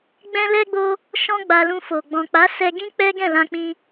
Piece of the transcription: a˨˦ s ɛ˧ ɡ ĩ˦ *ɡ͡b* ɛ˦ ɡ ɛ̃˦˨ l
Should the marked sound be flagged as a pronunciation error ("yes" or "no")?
yes